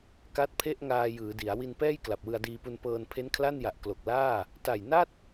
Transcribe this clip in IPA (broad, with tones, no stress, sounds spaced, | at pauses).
k a˦˥ t̚ pʰ e˥˩ ʔ ŋ aː˧ j ɯː˩˦ d i˩˦ a̯ w i˧ n p ɛː˥˩ j k l a˨˩ p̚ w ɯ˧ a̯ d iː˧ p u˧ n p ɤː˧ n pʰ e˦˥ n kʰ l a˥˩ n j a˨˩ ʔ k l o˨˩ k̚ l aː˥˩ | t a˨˩ j n a˥˩ t̚